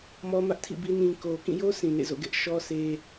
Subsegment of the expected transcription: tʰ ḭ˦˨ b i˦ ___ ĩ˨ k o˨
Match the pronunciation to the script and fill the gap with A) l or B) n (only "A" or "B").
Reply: B